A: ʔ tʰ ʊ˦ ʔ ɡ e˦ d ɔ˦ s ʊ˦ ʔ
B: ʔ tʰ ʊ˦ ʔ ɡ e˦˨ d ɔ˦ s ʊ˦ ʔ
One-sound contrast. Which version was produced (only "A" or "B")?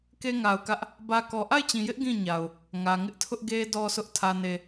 A